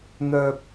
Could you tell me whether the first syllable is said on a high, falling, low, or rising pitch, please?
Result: low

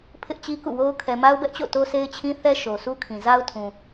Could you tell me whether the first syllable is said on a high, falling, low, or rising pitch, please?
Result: high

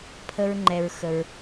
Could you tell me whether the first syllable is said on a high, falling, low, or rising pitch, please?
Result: high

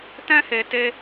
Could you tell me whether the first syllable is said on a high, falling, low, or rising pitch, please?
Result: high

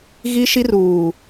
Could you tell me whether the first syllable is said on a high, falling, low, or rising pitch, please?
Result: high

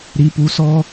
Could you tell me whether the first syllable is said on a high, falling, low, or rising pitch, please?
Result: high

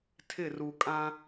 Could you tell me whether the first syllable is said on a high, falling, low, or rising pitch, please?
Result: falling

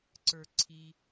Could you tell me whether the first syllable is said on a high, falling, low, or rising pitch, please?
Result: low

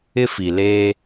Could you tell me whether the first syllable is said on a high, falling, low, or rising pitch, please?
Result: high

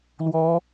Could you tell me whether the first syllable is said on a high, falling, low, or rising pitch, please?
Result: high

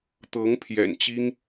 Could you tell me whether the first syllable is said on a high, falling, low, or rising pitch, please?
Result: rising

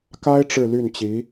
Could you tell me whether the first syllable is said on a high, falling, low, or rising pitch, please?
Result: high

